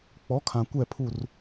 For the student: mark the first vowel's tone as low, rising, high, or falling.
rising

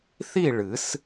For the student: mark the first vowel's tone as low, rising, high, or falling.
falling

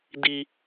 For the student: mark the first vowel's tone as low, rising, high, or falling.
high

